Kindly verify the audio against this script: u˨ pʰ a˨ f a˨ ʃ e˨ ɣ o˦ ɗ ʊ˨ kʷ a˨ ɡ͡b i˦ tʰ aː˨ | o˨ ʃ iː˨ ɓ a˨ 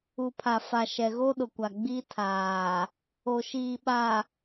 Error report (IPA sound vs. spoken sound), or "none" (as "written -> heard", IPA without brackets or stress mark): e˨ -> ɛ˨